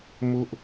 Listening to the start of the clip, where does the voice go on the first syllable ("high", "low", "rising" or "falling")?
high